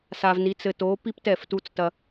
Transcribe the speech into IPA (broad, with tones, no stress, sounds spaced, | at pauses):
s a˨ v n i˨˦ t͡s ɘ˨ t o˨˦ p i˦ p t ɛ˦˨ f t u˦ t͡s t ɐ˦